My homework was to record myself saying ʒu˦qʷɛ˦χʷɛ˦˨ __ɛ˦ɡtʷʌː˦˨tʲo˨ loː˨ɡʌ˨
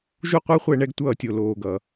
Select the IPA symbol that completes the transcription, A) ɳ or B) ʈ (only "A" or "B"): A